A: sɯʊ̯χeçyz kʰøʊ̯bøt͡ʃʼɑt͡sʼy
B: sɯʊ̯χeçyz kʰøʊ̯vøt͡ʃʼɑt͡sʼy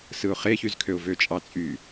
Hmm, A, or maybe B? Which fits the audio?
B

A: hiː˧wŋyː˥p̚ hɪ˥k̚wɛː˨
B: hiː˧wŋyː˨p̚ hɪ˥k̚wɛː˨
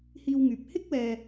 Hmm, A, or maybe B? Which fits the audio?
B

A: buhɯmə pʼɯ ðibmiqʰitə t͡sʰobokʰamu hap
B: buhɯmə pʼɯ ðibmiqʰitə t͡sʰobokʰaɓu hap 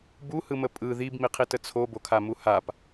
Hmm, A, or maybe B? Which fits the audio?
A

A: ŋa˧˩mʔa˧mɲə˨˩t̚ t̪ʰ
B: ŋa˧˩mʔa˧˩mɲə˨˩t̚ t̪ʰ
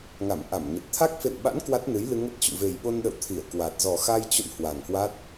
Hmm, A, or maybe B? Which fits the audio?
B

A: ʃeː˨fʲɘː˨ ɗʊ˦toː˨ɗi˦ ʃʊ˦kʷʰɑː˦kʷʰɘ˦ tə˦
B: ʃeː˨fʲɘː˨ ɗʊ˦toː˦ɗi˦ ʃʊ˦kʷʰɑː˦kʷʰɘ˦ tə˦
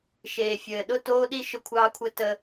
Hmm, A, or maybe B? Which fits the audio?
B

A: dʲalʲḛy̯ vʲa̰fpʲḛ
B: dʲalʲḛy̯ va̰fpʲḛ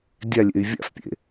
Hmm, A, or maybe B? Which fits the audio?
A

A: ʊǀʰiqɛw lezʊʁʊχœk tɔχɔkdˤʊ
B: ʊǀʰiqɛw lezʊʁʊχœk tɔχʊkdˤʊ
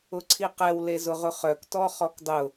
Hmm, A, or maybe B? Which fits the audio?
A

